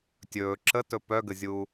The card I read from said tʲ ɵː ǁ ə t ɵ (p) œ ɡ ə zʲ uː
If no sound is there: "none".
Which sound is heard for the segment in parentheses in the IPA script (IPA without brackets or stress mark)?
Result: p